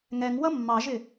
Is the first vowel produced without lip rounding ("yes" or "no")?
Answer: yes